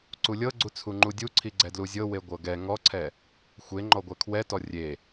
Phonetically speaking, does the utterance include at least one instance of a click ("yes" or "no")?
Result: yes